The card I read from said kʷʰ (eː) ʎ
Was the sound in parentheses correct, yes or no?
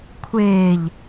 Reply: yes